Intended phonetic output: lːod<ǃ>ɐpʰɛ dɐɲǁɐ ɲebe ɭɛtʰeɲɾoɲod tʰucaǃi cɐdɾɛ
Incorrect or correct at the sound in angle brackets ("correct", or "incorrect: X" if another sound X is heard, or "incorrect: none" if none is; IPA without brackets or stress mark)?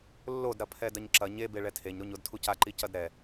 incorrect: ɾ